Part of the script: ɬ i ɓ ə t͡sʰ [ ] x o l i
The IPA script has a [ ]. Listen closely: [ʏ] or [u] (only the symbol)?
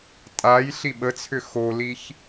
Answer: ʏ